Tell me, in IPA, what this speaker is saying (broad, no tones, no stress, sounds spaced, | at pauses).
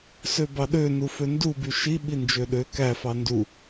s ø b ɑ ɗ ø n u f ø n d u b y ʃ i ɓ i n d͡ʒ ø ɗ ø k æ f ɑ n d u